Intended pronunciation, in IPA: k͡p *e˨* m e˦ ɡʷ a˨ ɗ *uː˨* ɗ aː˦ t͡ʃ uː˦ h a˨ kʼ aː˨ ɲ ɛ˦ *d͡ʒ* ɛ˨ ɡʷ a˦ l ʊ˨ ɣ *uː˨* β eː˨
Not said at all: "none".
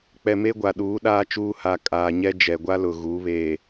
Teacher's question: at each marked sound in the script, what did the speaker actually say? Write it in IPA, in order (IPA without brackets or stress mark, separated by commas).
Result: ɛ˨, uː˨˦, d͡ʒ, uː˨˦